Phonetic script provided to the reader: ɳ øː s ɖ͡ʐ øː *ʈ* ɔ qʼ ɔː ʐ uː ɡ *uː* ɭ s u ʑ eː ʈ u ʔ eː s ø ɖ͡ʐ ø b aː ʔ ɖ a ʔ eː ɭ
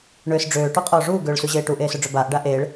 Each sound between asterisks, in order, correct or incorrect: correct, incorrect

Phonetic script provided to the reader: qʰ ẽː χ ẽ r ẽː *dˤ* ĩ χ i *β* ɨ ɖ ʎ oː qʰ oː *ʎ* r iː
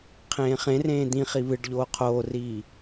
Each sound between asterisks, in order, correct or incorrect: incorrect, correct, incorrect

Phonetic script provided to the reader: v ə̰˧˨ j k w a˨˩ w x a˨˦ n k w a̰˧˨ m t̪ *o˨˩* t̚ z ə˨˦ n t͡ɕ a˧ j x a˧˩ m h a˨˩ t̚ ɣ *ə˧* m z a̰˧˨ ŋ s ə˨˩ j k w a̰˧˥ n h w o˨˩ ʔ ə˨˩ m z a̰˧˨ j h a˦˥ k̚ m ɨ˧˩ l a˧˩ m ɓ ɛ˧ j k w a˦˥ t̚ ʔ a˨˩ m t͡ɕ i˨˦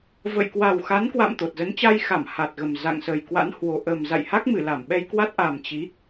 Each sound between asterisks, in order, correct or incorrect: correct, incorrect

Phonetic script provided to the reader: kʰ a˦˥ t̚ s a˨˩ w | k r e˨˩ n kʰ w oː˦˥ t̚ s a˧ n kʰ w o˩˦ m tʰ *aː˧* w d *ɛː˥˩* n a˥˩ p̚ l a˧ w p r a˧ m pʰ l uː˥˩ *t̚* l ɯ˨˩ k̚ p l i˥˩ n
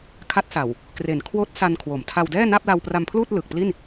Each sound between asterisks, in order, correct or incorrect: incorrect, correct, correct

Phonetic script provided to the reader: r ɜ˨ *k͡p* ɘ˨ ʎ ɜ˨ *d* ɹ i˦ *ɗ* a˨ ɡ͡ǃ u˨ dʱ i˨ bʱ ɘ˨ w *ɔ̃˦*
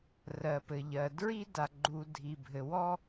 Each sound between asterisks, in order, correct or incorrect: incorrect, correct, incorrect, incorrect

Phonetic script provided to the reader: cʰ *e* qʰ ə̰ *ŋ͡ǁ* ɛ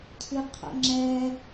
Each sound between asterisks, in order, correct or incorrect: incorrect, correct

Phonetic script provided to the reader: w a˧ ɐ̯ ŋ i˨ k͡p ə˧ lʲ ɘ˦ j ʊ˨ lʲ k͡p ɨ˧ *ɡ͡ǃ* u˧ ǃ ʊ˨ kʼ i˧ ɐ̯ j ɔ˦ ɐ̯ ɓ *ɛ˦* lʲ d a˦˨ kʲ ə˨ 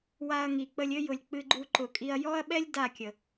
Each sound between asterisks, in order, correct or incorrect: correct, correct

